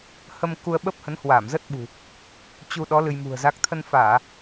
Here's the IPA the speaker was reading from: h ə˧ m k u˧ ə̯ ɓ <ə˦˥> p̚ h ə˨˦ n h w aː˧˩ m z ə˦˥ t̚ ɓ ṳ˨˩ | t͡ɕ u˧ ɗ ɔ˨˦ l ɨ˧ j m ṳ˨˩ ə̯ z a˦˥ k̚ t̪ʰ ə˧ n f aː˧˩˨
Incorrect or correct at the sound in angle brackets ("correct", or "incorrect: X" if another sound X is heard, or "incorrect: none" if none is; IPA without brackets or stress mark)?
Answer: correct